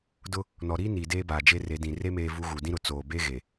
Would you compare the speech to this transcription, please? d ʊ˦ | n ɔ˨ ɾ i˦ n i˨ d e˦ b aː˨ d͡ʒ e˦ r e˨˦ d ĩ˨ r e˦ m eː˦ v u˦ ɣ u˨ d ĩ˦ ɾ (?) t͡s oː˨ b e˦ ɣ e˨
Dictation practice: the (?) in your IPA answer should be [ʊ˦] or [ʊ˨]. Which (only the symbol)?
ʊ˨